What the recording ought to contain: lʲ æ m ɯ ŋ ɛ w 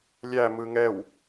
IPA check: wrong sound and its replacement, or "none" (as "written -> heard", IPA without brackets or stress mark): none